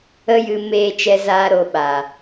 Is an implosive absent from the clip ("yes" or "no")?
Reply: no